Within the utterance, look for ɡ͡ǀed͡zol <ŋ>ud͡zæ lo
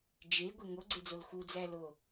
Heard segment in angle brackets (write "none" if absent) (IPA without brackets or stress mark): x